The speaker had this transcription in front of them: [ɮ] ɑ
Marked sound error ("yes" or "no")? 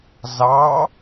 yes